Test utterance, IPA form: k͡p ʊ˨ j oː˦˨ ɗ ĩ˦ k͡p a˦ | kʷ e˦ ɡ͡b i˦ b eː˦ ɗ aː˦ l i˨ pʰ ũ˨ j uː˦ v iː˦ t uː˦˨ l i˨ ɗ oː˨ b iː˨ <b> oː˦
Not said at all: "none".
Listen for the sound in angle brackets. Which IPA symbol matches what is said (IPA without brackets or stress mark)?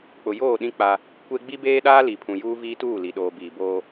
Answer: b